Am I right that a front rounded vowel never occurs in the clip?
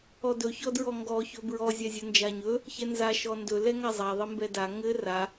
yes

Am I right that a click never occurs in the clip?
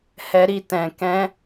yes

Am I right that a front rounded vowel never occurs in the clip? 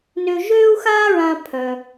no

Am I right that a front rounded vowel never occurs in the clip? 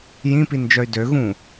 no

